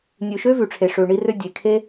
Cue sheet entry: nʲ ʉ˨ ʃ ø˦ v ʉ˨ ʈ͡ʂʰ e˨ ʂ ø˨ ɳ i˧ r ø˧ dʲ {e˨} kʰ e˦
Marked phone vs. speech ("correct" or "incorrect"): correct